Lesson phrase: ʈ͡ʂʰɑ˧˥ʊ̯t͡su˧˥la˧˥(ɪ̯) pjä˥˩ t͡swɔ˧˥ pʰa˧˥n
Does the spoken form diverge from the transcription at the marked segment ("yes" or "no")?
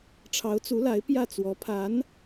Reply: no